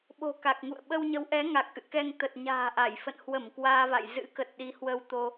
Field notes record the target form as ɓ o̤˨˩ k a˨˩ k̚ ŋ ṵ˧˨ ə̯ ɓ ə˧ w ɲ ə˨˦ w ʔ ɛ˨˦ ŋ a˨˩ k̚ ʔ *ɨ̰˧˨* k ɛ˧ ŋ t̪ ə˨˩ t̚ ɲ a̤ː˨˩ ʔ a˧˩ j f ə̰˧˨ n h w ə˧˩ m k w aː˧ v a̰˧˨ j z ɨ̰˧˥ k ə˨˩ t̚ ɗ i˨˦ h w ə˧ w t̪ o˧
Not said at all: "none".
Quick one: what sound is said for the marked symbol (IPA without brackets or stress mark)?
ɨ̰˧˨